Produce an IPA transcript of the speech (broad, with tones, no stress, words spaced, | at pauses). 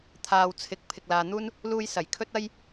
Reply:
t̪ʰaː˨wt͡sʰɪ˨k̚ pʰɪ˧k̚laː˧n̪uː˥n | luː˧jsɐ˨˩j kʰɵ˥t̚ ɐ˥j